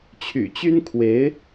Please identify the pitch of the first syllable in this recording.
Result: low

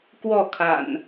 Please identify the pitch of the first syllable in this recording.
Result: falling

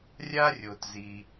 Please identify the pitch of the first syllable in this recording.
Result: high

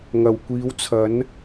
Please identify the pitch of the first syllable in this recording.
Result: low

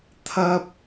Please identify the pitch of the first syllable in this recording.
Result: high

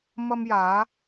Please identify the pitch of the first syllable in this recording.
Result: high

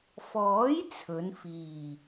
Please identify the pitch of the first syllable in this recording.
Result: rising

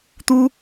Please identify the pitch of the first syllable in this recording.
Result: high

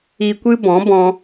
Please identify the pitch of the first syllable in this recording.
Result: low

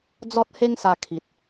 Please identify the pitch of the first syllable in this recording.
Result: high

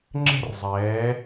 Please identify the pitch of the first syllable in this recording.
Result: high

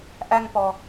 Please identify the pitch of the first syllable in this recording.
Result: high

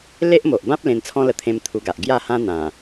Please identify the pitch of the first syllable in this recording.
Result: high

